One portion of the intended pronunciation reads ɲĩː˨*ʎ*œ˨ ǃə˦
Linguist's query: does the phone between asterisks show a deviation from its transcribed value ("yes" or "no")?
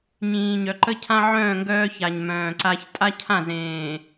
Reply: yes